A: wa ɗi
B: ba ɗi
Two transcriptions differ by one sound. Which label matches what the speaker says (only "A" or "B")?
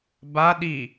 B